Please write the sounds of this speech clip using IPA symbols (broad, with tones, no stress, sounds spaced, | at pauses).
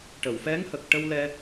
ʈ ə˨˩˨ w f ɛ˧˥ ŋ h ə˨˩ k̚ ʈ ə˧ w l ɛ˧